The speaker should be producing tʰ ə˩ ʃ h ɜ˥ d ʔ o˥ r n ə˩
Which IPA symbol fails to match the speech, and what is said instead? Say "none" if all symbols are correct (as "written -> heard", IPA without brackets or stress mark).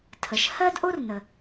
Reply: none